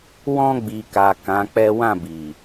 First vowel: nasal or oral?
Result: nasal